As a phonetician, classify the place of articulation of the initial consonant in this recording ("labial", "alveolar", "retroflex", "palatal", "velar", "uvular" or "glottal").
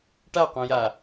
retroflex